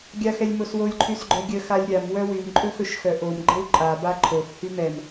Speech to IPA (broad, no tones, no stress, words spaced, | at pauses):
ɡʲaxɛlʲmoswolʲ ǃʰysɡ͡ǃœɡʲə xalʲɾʲam wœwym ǃʼɵxɵʃxœʔom ɡ͡ǃəwǃʼa baǃʰox hymɛm